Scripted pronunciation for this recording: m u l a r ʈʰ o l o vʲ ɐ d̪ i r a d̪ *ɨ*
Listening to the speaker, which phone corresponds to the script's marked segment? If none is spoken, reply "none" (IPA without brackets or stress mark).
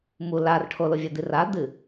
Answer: ɨ